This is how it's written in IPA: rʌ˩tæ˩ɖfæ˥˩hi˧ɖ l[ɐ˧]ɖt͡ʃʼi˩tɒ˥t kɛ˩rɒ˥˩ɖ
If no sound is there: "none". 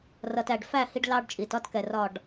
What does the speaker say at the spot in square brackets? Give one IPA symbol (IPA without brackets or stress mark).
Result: ɑ˧